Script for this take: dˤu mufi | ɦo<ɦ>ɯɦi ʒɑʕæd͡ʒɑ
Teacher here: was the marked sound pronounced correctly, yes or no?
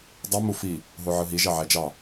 no